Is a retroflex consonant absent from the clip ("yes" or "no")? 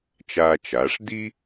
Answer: no